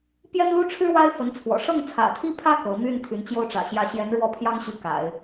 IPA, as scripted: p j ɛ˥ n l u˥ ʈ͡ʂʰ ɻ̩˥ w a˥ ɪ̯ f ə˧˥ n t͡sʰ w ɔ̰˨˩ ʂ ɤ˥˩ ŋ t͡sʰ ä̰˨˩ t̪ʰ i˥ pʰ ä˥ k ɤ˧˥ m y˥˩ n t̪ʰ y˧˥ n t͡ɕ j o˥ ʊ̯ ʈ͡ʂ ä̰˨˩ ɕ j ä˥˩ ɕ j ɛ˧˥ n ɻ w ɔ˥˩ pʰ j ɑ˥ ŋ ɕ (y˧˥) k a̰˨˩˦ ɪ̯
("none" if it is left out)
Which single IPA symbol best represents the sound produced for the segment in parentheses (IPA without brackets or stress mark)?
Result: y˧˥